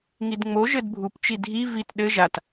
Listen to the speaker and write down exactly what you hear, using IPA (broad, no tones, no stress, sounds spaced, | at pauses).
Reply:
ŋ i d ŋ͡m o ʒ ɘ d bʱ u p t͡ʃ i dʱ i v i t ɗ ɘ ʒ a t